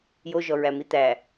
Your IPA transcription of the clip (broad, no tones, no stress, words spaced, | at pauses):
joʒɔɹæ mit̪æ